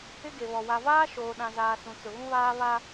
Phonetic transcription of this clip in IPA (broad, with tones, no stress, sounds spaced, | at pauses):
ɪ˦ ɡ e˨ β ɔ˨ w a˨ v aː˦ ʃ oː˨ ɗ ã˨ z aː˨ s ũ˨ t͡s ʊ˨ ɣ ũ˦ β aː˦ β a˦